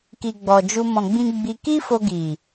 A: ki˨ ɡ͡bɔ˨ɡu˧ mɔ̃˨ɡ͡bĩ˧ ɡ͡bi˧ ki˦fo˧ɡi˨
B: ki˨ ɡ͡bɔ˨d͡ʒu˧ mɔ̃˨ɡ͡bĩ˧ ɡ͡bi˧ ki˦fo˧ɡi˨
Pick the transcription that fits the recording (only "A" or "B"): B